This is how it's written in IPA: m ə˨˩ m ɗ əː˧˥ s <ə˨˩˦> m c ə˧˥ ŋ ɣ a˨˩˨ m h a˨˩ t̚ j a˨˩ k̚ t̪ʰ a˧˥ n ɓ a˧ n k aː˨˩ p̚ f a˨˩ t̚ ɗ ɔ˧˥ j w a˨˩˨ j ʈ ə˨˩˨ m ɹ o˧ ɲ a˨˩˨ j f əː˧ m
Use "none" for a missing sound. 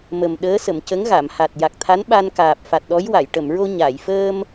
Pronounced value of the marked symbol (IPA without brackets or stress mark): ə˨˩˨